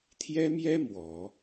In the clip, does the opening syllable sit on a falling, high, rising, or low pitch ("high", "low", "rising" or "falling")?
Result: high